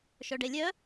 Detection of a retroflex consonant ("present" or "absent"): present